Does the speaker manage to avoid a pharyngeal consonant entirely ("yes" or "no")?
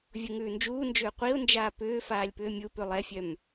yes